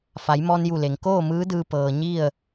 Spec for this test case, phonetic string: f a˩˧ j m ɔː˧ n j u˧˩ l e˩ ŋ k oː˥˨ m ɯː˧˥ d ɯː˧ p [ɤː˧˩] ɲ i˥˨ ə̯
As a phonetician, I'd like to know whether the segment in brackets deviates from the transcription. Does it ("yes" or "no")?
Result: yes